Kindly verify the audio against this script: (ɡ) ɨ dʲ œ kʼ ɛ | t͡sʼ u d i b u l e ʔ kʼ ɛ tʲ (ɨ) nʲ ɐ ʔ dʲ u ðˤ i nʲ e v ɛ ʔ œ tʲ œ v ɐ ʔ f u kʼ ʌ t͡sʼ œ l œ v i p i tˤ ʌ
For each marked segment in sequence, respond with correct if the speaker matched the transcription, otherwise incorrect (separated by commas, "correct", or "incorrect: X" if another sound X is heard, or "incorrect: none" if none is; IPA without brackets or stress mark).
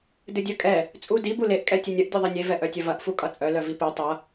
incorrect: d, correct